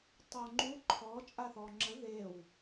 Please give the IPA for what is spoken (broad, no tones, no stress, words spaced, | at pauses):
tˤoŋ͡ǃu ǃʰɔ t͡ʃʼaθɔŋ͡ǁə ðew